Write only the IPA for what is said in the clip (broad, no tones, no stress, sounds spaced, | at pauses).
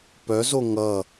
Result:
p œ z o ŋ ʌ